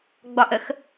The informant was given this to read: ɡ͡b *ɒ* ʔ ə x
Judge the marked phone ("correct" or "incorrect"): correct